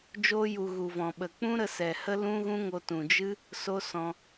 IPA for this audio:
d͡ʒoː˧ju˨ ɣu˨vɔ̃˨ɓə˨ k͡pũ˦ɾə˧sɛ˨ hə˦lũ˦ɣũ˦ŋo˧ tũ˨d͡ʒɨ˦ | so˦sɔ̃˧

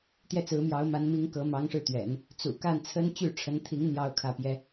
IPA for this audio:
t̪jɛ˥˩t͡sɹ̩˧˥mjɑ˧˥ʊ̯ ma˧˥nmi˧˥ŋ kɤ˧˥mɑ˧˥ŋʂɻ̩˥˩t̪ɥɛ̰˨˩˦n | t͡sṵ˨˩ka˥˩nt͡sʰə˥n t͡ɕy˥˩ʈ͡ʂʰə˧˥nt̪ʰi˧˥ŋ n̪jɑ˥ʊ̯kʰä˥˩pjɛ˥

